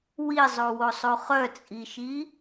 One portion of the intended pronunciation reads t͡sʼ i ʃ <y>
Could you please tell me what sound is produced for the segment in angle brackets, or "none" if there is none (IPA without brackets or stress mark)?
i